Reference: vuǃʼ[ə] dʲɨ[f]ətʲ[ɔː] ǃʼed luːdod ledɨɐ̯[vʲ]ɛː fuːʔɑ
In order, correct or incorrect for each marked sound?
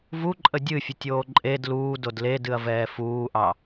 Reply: correct, incorrect: fʲ, incorrect: oː, incorrect: v

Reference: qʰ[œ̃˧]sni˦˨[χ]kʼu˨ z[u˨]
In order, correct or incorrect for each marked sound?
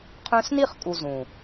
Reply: correct, correct, incorrect: ũ˨

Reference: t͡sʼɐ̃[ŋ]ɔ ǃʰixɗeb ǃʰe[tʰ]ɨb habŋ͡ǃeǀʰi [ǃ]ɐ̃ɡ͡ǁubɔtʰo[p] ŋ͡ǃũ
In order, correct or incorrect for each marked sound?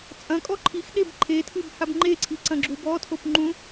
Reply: incorrect: kʼ, correct, incorrect: ǀ, correct

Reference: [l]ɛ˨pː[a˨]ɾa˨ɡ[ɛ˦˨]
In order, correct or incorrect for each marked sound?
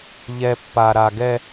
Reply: incorrect: ʎ, correct, incorrect: ɛ˦

